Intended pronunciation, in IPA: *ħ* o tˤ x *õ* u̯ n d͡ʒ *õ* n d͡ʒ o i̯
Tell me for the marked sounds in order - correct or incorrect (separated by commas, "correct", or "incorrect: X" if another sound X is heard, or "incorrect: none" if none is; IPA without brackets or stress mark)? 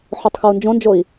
correct, incorrect: o, correct